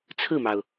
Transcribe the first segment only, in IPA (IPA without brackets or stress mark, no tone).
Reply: t͡sʰ